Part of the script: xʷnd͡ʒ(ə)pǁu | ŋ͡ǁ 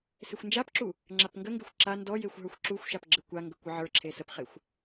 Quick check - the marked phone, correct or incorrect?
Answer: incorrect